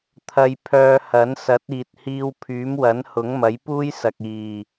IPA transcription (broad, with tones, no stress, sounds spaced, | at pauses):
t̪ʰ ɐ˧ j pʰ œː˧ h ɐ˨˥ n s ɐ˨˥ t̚ iː˨ t̚ h iː˧ w pʰ yː˨˥ m w ɐ˨˥ n h ʊ˨˥ ŋ m ɐ˨˥ j p uː˥ j s ɐ˨ k̚ iː˨˩